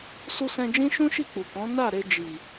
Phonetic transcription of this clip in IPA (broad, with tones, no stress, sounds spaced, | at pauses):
s u˧ s ɛ̃˧ d͡ʒ ĩ˦ ʃ ũ˦ ʃ i˦˨ k͡p u˨ k ɔ̃˨˦ n a˦˨ ɾ e˧ d͡ʒ i˨